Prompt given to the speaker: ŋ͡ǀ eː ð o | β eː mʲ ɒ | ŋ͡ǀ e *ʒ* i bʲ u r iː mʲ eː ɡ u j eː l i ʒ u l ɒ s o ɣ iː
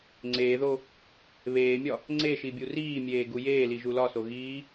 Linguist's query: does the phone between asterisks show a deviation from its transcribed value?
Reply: yes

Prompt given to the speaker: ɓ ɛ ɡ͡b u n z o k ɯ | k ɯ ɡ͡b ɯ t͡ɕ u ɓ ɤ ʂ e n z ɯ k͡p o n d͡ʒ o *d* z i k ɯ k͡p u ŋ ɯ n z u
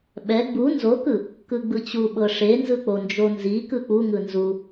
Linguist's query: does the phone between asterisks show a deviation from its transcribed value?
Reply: yes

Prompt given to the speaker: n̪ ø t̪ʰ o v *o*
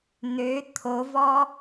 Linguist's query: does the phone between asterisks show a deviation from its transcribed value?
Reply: yes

